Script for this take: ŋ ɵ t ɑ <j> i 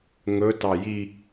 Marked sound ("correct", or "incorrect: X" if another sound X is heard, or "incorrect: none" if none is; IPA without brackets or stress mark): correct